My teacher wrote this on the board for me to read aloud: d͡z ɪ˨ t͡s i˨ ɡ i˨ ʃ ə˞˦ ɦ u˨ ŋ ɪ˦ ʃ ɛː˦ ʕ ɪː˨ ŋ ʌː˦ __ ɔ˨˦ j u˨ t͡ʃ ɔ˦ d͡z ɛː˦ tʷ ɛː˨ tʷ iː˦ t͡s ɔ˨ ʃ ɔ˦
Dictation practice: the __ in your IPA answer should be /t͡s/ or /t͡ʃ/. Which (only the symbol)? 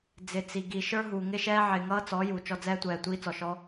t͡s